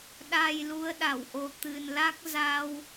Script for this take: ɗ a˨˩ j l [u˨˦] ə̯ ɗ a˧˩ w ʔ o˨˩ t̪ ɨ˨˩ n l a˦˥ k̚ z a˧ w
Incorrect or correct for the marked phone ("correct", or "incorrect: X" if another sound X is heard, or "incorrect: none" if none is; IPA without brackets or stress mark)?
correct